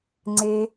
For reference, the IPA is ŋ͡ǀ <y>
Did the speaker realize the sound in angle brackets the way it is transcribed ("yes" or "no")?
no